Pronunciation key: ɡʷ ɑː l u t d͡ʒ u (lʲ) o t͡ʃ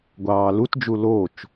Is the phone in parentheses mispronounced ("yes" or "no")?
yes